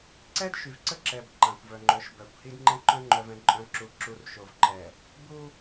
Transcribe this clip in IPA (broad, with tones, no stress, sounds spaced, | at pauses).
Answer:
ǀ ɛ˦ d ʃ y˨ v ǀ ə˦ ǁ ɛ˨ b ǃ ã˨ kʷ v œ˨ ŋ͡ǃ œ˨˦ ʃ b œ˨ kʷ h i˦ d ŋ͡ǃ ɛ̃˦ ǃ œ̃˦ ŋ͡ǃ œ˨ v ɛ̃˨ ǃʼ œ̃˨ ǁ u˨ ǁ u˨ r ʃ o˨ v ǃ ɛ˨ | b u˦